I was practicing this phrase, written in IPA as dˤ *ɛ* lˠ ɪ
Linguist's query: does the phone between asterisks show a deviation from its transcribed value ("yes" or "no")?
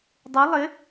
yes